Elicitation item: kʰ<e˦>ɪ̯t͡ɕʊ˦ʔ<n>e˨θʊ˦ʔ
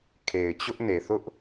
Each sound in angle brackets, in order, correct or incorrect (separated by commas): incorrect, correct